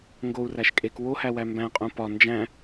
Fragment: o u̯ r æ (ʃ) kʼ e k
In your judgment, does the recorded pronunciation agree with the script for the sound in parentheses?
yes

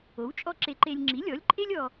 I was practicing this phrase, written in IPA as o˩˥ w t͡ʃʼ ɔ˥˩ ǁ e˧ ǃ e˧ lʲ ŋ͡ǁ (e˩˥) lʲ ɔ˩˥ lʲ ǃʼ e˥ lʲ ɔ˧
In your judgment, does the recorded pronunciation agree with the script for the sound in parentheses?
no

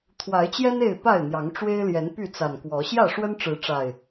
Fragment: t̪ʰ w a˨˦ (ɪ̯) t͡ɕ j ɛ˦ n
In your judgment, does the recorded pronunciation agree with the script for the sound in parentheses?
yes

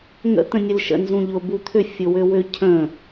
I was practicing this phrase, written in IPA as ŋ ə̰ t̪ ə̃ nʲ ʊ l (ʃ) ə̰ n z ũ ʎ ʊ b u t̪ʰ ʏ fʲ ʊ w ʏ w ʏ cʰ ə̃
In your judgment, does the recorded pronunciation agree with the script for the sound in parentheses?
yes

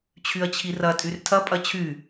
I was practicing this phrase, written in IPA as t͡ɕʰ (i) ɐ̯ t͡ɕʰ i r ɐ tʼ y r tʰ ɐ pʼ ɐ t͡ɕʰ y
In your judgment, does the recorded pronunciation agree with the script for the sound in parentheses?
no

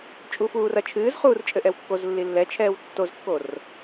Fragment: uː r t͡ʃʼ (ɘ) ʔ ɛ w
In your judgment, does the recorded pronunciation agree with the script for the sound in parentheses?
yes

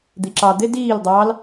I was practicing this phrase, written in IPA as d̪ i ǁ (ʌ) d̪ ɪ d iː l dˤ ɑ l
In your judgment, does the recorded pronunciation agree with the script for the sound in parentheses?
no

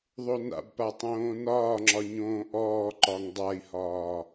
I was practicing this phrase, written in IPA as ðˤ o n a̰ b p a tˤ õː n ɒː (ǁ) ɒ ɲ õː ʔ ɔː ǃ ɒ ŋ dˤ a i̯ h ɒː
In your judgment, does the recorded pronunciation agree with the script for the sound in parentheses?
no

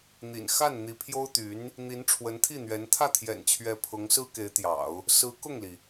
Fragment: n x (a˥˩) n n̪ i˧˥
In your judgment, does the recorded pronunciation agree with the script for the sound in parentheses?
yes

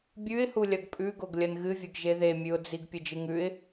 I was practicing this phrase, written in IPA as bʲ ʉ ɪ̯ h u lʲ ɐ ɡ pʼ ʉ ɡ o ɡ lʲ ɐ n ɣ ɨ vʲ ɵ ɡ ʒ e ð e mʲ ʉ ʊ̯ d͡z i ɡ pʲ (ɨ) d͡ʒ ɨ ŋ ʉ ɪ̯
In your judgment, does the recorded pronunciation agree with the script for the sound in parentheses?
yes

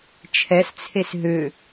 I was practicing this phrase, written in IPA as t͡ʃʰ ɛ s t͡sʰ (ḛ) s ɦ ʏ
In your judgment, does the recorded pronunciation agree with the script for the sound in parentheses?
no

